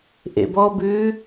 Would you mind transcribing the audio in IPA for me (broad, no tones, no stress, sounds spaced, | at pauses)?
ʔ ḛ b ɔ b ʉː